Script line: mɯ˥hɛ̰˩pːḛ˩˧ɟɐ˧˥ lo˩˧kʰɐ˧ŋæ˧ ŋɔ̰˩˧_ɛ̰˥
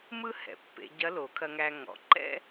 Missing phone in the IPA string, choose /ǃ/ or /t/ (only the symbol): ǃ